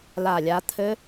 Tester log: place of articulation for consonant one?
alveolar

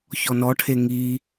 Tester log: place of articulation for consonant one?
palatal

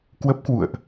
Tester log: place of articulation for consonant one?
velar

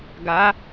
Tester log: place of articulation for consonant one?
velar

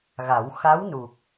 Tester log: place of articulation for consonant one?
velar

